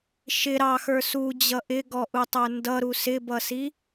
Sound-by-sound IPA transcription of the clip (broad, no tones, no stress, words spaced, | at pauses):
ʃɪ ɾɑxə˞ sud͡ʑʌ ʔɪɡɔʔutˤə˞ ndʌɾu sɪbʌsi